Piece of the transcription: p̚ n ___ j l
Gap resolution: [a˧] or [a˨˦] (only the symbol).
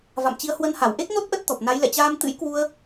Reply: a˨˦